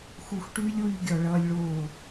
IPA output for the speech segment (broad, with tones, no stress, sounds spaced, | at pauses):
x u˨ x ʈ y˦ lʲ w y˧ ɡʲ ɔ˨ ɭ ʌː˧ lʲ ɭ oː˦˨